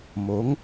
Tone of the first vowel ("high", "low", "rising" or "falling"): rising